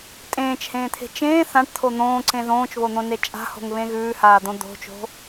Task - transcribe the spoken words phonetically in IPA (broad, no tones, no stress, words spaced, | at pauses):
tʼẽːt͡ʃhẽːt̪ʰe̤ t͡ʃẽː θãʈt̪ʰo n̪õːǀẽ ðõːt͡ʃβon̪õne t͡ʃʼa̤ho̤ŋβẽ ɣʉːhaːd̪õ d̪o̤t͡ʃo̤